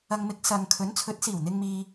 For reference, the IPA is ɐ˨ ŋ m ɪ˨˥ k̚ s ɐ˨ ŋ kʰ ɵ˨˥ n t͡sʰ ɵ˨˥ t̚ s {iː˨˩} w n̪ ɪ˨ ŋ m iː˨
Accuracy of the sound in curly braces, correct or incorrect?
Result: correct